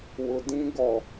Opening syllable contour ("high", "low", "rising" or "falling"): low